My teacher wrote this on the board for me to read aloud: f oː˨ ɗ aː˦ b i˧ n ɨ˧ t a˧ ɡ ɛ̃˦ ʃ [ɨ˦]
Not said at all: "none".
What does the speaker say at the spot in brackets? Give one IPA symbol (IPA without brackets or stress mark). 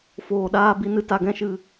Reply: ɨ˧